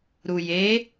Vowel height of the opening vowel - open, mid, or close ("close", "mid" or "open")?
close